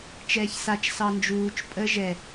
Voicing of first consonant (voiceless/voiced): voiceless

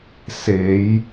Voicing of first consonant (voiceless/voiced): voiceless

